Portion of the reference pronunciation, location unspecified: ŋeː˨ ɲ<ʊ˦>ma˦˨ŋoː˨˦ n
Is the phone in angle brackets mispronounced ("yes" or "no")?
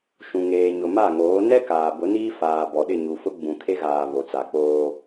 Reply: yes